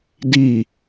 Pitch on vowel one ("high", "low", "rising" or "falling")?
falling